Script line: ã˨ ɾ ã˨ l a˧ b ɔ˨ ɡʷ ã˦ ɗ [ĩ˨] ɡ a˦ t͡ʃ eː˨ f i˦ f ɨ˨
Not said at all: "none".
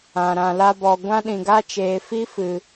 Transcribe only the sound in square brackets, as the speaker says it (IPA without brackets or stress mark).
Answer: ĩ˨